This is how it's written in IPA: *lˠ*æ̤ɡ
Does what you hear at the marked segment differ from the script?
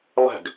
no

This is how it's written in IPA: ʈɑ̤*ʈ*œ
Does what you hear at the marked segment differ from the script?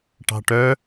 no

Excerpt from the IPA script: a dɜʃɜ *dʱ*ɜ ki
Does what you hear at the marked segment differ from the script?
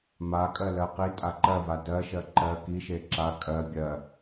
yes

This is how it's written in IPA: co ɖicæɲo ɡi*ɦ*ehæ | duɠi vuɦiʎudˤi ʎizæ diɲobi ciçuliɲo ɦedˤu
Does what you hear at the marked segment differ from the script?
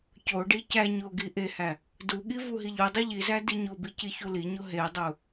yes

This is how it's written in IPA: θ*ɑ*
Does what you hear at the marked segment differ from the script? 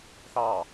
no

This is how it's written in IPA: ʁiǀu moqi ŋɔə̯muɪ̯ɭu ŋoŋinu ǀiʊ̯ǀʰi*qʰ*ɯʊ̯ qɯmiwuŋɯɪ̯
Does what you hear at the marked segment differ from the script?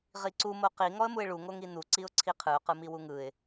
no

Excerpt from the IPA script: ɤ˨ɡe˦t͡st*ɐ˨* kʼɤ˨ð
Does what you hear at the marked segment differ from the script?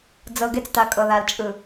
yes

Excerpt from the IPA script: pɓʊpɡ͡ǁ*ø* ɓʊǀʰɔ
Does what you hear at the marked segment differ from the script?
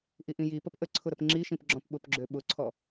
no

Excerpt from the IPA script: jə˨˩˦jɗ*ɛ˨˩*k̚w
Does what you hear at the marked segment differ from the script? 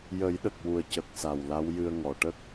yes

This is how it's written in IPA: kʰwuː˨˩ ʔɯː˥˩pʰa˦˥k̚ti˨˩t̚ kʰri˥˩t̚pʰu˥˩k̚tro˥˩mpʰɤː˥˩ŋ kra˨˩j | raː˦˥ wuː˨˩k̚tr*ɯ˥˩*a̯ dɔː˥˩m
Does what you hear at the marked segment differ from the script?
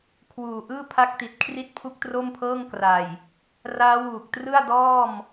no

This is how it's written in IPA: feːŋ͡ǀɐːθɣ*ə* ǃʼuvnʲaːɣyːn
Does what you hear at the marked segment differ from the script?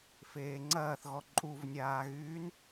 yes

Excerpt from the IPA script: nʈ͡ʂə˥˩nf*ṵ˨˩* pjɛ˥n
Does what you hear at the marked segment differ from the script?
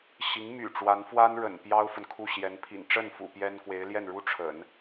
no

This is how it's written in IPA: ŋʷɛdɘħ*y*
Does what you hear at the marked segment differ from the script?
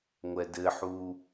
yes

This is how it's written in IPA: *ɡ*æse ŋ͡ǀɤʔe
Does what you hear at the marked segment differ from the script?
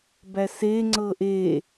yes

